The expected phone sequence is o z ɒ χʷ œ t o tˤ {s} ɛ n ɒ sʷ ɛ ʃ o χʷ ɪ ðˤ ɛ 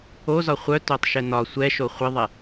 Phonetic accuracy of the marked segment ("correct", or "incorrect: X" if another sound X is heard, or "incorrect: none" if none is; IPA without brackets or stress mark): incorrect: ʃ